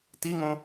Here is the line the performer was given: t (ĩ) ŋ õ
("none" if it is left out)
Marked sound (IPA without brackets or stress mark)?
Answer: i